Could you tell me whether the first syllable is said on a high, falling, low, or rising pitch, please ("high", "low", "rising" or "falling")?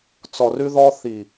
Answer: low